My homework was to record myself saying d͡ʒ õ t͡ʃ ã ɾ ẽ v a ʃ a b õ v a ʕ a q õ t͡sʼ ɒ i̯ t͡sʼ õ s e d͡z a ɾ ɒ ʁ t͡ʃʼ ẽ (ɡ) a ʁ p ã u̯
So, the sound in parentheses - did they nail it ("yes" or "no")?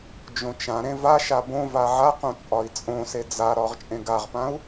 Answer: yes